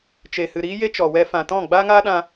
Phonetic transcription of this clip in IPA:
t͡ʃ e˨ h ɨ˨ ɾ iː˦ j e˦ t͡ʃ ɔ˨ w ɛ˧ f ã˨ t ɔ̃˦˨ ɡ͡b aː˦ ŋ aː˦ ɗ ã˧

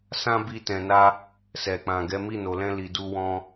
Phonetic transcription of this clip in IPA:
s ã˦ b i˧ t ɛ̃˨ n a˧ | s ɛ˨ k͡p ã˨ ɡ ɛ˨˦ m i˦˨ n o˨ l ɛ̃˧ l i˨ d u˧ w ɔ̃˧

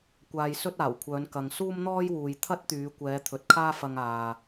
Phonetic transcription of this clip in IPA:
kʷ aː˧ j s ɵ˥ t̚ aː˨˩ w kʷʰ œː˨˧ n k ɐ˨ ŋ s uː˥ m n̪ ɔː˥ j w uː˨ j t̪ʰ ɐ˥ t̚ t̪ yː˨˧ kʷ ɛː˨˧ t̪ʰ ɵ˨ t̚ kʰ aː˥ f ɐ˧ ŋ aː˨

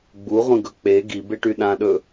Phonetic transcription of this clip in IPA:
ɡ͡b u ʁʷ ĩ ɡ ɵ k͡p e ɡ i b e ʈ y ɗ ã ɗ ɵ

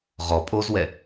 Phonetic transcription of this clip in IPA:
ʁ ɔ pʼ o z w ɛ

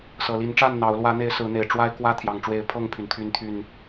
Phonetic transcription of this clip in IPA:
s ɤ˨˩ l i˨˦ n ʈ͡ʂ a˥˨ n n̪ ɑ˨˦ ʊ̯ l w ä˨˦ n̪ e˨˦ ɪ̯ s ɹ̩˨˦ n̪ e˨˩ ɪ̯ ʈ͡ʂ w a˦ ɪ̯ k w ä˦ t̪ʰ j ɑ˨˩ ŋ ʈ͡ʂ w e˨˦ ɪ̯ pʰ ɤ˥˨ ŋ pʰ y˩ n t̪ʰ y˨˦ n t̪ʰ y˨˩ n

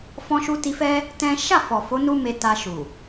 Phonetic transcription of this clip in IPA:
f ɔ̃˧ ʃ u˧ t i˧ f ɛ˦ | t ɛ̃˦ ʃ a˦˨ f ɔ˨ f o˨˦ n u˦ m e˧ t a˧ ʃ u˨

